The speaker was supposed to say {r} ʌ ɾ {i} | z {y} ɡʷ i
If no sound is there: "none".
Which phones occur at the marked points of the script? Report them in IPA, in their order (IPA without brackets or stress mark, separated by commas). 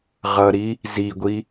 ʁ, i, i